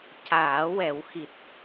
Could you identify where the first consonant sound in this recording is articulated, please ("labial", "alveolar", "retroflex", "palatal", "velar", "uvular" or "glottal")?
palatal